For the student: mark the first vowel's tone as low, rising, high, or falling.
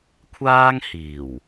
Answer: high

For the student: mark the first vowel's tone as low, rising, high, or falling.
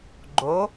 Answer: rising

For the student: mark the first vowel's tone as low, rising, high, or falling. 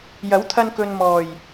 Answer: rising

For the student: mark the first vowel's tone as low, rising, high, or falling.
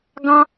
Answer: high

